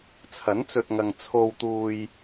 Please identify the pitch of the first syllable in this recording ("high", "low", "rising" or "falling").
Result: rising